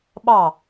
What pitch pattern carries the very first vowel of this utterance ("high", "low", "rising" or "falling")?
falling